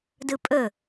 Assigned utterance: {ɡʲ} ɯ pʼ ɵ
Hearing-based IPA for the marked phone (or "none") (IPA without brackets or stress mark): d